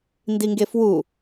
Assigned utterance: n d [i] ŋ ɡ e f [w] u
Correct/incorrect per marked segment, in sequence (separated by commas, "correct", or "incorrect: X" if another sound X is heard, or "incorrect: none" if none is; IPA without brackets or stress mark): correct, correct